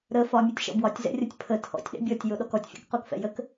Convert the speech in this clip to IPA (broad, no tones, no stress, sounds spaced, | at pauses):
ɾ ə f ɒ mʲ ɛ tʲ ʃ ɔ̰ b w ɒ tʲ z ɛ̰ rʲ ɒ tʲ pʰ ə tʰ ɔ̰ tʲ ɗ ɛ̰ bʲ ɔ tʲ j o ɗ ɔ k ɔ tʲ fʲ ɔ̰ k q o k f ɛ̰ j ə k